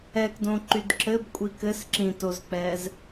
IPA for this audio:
ɛ k d õ ǃ y d ǁ ɘ b kʷʼ i k ɘ s ǁ ĩ t o z k͡p ɛ z

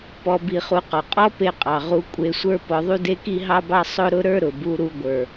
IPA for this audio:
p ɔ˧ b i˧ χ u˧ q ɔ˩ qʼ ɔ˥ p e˧ qʼ ɑ˩ ʁ u˧ kʷʼ e˧ sʷ ə˞˥ p ɔ˧ ðˤ u˥ d e˥ k i˥ ɦ ɑ˥ b ɑ˥ sˤ ʊ˥ ɾ ʊ˥ ɾ ə˞˥ ɾ ʊ˩ b u˧ ɾ u˧ ɡʷ ə˞˩

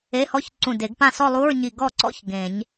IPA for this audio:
e˧˥˧ h ɔ˦˥ ç ǀ ũ˧˩ d e˨˩˦ ɡ p ã˥˩ s ɔ˥˧ lˠ u˧˥˧ ɹ ɲ i˧˩ ɡ ɔ˥˩ ǀ ɔ̰˦˥ ç ɡ ẽ˨˩˦ ɲ

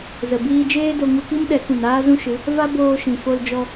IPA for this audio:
z ə˨ b iː˧ d͡ʒ eː˦ d o˧ ŋ u˧ k i˦ m ɗ ɛ˨˦ k ũ˨ n aː˦ z ũ˦ ʃ ɨ˨˦ | v a˦ b oː˧ ʃ ĩ˨ f o˧ l d͡ʒ ɔ˧

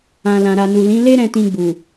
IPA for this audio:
ã˨ l ã˨ ɾ a˨ n u˨ l ĩ˨˦ l e˦ ɾ ɛ̃˧ t ĩ˧ ɡ͡b u˨

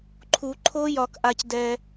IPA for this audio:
ǃʰ u˨˩˦ ǃʰ o˦˥ j ɒ˨ k ʔ a˨ c d ɛ˨

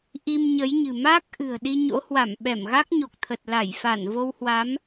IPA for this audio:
ʔ i˧ m ɲ ə˨˦ j ɲ ɨ̤˨˩ m a˦˥ k̚ ʔ ɨ̤˨˩ ə̯ ɗ i˧ ɲ o̰˧˥ h w a˧˩ m ɓ ɛ˧˩ m ɣ a˦˥ k̚ ɲ o˨˩ k̚ t̪ʰ ə˨˩ t̚ l a˧˩ j f a˧˩ n v o˧ w h w a˨˦ m

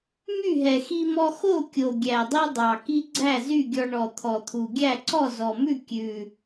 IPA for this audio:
m y˥˩ ɦ ɛ˨˩ x i˧ m ɔ˧ x o˥˩ kʲ o˨˩ ɡʲ æ˨˩ dˤ i˧ dˤ ɑ˨˩ k i˧ ɡ͡ǀ æ˥˩ z y˥˩ ɡʲ ɔ˧ ɳ ɔ˨˩ t̪ʰ ɔ˨˩ t̪ʰ u˨˩ ɡʲ æ˥˩ ǀ ɔ˥˩ z ɔ˨˩ m ʉ˥˩ kʲ ʉ˨˩

